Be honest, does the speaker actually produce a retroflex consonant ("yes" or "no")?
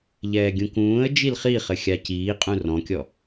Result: no